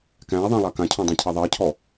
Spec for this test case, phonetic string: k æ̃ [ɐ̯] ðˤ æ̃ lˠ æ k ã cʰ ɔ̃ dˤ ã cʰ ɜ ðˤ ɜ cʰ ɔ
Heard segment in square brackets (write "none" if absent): ɐ̯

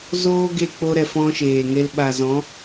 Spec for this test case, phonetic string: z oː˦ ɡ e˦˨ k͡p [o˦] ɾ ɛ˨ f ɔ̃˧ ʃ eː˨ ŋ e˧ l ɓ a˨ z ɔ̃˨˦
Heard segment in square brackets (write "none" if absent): o˧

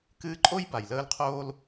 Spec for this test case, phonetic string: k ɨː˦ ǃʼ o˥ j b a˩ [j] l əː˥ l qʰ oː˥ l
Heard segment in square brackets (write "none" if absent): j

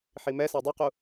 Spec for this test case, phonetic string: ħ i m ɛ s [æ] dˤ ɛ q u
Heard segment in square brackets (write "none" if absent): æ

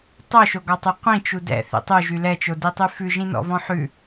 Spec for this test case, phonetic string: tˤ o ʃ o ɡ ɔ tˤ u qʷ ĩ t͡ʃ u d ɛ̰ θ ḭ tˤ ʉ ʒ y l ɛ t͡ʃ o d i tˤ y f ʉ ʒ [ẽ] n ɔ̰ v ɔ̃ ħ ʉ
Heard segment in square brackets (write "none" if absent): ĩ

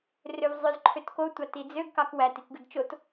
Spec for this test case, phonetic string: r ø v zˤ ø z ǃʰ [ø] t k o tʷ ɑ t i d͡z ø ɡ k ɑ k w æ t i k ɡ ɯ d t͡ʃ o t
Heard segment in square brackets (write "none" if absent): ø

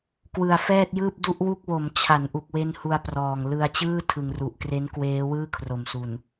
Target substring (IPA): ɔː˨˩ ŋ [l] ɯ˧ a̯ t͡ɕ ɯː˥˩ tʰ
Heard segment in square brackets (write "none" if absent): l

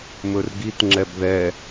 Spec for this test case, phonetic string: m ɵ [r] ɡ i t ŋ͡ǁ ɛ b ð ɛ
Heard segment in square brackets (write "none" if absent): r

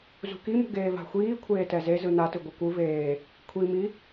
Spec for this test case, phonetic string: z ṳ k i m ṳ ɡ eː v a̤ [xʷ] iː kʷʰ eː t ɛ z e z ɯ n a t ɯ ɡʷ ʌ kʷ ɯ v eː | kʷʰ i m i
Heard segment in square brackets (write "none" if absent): xʷ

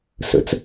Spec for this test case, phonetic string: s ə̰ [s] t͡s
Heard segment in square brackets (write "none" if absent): none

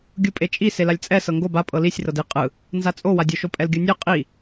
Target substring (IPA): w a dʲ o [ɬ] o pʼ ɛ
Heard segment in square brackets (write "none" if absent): ʃ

